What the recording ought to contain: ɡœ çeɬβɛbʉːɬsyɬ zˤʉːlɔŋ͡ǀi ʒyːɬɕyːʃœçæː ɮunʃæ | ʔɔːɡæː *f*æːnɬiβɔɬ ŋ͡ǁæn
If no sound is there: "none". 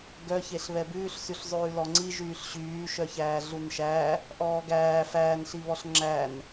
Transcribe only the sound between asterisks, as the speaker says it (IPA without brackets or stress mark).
f